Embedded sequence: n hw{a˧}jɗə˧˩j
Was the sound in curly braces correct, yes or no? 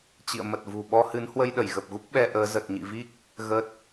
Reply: no